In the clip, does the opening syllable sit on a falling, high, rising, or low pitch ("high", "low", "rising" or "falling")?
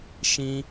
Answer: high